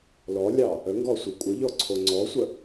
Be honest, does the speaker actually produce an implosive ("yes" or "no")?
no